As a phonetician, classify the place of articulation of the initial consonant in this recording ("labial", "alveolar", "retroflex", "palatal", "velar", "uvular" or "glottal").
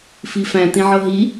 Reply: labial